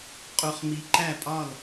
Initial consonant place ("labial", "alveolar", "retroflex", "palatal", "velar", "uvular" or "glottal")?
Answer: uvular